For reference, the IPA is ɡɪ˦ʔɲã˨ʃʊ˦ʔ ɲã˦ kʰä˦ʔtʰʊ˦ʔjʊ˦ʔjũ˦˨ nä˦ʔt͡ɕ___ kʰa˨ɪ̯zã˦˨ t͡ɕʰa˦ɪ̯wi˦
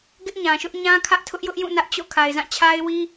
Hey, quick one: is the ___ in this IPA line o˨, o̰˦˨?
o̰˦˨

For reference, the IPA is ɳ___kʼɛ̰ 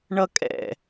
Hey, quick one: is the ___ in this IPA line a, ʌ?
ʌ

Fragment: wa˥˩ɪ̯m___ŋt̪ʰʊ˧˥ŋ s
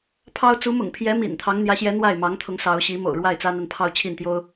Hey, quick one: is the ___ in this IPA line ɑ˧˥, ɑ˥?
ɑ˧˥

